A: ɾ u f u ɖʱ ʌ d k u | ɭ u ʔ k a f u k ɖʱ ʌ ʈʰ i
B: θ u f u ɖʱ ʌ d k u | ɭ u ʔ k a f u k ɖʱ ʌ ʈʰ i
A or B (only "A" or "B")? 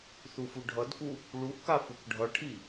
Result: B